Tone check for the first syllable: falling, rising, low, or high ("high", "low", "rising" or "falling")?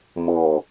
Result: low